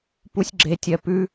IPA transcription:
p u sʲ ɡ͡ǁ e tʲ ɜ p ʉ

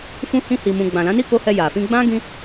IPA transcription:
f ũ˦ h ĩ˧ h i˨ m ũ˨ ɡ͡b ã˨ l ã˨˦ n i˦˨ k o˧ h ɛ˧ j a˨ f ĩ˧ ɡ͡b ã˦ ɡ ĩ˦

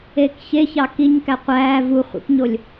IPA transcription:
eː k ç e ç ɑ k i ɲ k æ qʷ æː v u χʷ ḭ k ɲ o lʲ

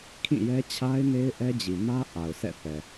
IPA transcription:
kʰ ĩ˦˨ j ɛ˦ t͡ɕʰ a˦ ɪ̯ n e˦ ɪ̯ ʔ ɛ˦ d͡ʑ i˨ m ä˦ ʔ a˨ ʊ̯ sʰ ɛ̰˦˨ θ ɛ˨

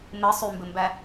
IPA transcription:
m ɘ sˤ y m b ɘ m b æ

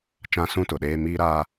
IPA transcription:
t͡ʃ ã˦ s ũ˦ t ʊ˨ ɗ eː˦ m iː˦ ɾ aː˦

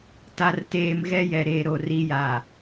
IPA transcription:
t a˨ r t eː˨ m ɣ ɛ˦ j ɛ˨ ɾ e˨ ɾ o˨ r i˦ j a˨

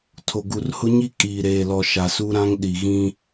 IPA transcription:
tʰ o˨ ɡ u˨ r h ʊ˦ ɲ i˦ kʼ iː˨ ɾ eː˨ l ɔ˨ ʃ a˨ s u˦ ɾ ã˦ ŋ ɗ i˨ ɣ ĩ˦

